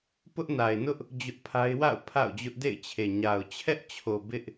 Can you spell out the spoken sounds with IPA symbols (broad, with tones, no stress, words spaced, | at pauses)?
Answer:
pʊ˦ʔna˨ɪ̯nʊ˦ʔ | d͡ʑʊ˦ʔpʰa˦ɪ̯ wa̰˦˨ʊ̯ pʰa̰˦˨ʊ̯d͡ʑʊ˦ʔ dḛ˦˨ɪ̯t͡ɕʰe˨ ɲa˨ʊ̯ t͡ɕʰɛ˦ʔ t͡ɕʰo˨ bɪ˦ʔ